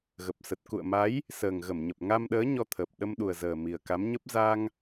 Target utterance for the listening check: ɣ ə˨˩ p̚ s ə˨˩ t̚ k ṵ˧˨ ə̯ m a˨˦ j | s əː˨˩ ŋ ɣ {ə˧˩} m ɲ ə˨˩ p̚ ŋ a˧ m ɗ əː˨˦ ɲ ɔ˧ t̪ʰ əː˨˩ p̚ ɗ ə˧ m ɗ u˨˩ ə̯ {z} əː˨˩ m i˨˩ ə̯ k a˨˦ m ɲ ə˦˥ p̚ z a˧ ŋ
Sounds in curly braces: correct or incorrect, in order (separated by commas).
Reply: correct, correct